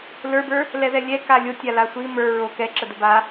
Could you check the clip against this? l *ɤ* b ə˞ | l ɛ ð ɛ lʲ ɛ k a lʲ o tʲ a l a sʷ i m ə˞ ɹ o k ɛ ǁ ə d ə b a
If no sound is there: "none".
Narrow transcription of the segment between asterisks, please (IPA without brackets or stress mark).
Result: ə˞